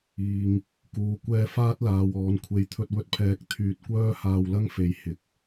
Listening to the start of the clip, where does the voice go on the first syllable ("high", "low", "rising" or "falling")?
low